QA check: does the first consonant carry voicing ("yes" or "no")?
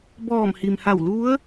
yes